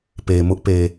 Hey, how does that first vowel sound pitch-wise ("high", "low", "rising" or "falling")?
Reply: low